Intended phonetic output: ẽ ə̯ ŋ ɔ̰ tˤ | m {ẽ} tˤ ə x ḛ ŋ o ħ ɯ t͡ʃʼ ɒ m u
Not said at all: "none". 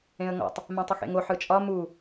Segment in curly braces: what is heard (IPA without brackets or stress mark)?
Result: ɛ̃